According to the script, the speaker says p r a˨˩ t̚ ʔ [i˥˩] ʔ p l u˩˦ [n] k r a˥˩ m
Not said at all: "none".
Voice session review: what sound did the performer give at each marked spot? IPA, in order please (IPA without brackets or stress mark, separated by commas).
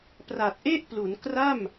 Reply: e˥˩, n